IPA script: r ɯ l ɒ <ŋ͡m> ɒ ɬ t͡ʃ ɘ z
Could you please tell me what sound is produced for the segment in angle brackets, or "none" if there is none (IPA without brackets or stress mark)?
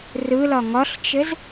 ŋ